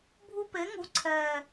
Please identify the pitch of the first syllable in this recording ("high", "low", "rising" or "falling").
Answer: high